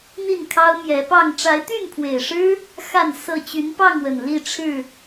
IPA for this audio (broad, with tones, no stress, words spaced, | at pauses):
n̪i˥˨nkʰɑ˦ʊ̯mjɛ˨˦ pɑ˥˨ŋ ʈ͡ʂa˨˦ɪ̯t̪y˥˨npʰwe˨˩ɪ̯ʂɻ̩˦ | xa˥˨n sɤ˥˨ t͡ɕy˨˦npɑ˥˨ŋwə˨˩n li˥˨ʈ͡ʂʰɻ̩˥˨